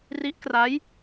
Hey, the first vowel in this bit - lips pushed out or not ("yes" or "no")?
no